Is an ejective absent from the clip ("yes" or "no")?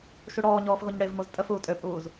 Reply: no